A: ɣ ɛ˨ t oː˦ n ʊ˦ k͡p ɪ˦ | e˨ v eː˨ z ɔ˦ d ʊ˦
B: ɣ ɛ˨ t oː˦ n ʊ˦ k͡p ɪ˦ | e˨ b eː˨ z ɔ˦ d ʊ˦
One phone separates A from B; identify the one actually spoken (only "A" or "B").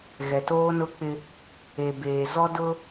B